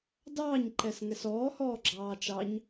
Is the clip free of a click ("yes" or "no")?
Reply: no